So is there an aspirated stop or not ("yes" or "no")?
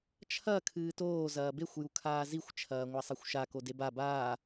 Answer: yes